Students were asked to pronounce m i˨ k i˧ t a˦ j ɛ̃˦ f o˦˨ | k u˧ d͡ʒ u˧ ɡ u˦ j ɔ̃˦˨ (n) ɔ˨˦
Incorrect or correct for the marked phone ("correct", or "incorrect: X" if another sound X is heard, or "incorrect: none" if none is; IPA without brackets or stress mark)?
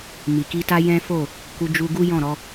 incorrect: ɾ